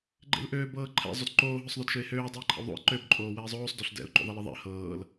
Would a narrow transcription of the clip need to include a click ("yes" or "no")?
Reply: yes